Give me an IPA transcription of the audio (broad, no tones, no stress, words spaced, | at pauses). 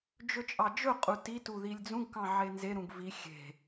d͡ʒɵt͡ʃʼɑd͡ʒɵqʼu titu ðilʲd͡zũɡkɑ̃ ʕenzeɾũɡ vi xʲe̤